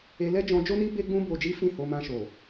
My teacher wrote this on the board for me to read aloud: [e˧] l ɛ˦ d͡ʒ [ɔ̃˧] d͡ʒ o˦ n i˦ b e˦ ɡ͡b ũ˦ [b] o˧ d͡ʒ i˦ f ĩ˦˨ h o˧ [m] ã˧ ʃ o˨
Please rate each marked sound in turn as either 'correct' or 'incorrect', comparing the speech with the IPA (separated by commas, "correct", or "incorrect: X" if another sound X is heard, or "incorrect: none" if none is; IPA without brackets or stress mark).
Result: correct, correct, correct, correct